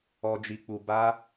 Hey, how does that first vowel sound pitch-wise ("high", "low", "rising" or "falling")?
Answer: low